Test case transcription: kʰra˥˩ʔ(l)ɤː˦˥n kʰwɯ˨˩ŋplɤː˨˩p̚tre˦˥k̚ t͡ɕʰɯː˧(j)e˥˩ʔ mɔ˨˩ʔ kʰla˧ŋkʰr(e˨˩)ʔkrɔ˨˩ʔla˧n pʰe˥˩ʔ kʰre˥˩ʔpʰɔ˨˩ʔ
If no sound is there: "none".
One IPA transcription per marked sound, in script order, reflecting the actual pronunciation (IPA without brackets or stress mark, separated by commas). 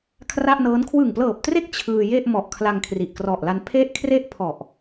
n, j, i˨˩